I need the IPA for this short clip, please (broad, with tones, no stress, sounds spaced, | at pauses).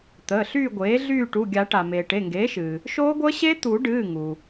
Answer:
t̪ əː˩˧˩ ɬ yː˦˨ ɡʷ eː˩˥ ɮ yː˦˨ ʈ u˩˧˩ ɡʲ a˨˩˦ ʈ a˩ m eː˩ ʈ e˩˧˩ ŋ ɡ eː˩˥ ʃ ɨː˩ | ʃ oː˦˥ ɡʷ əː˦˥ ɕ e˦˥ t̪ u˨˩˦ ɖ ɨː˩˧˩ ŋ u˩